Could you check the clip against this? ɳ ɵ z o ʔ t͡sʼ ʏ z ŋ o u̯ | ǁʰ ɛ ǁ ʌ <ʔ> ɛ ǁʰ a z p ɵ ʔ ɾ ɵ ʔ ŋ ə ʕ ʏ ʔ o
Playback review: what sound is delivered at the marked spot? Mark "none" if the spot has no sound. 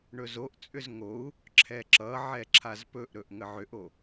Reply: ʕ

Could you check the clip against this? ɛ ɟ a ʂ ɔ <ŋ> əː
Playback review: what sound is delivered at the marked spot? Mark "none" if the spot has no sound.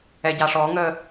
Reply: ŋ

